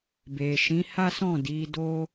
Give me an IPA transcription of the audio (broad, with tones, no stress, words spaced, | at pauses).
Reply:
be˨ʃĩ˨˦ha˦sɔ̃˦˨ di˨˦do˦